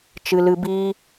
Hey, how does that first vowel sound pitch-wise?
high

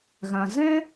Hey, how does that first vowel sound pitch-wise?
low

